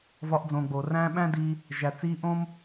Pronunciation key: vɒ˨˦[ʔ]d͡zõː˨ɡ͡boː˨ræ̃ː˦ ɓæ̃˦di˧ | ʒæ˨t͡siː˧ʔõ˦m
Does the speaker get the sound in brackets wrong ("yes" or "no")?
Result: no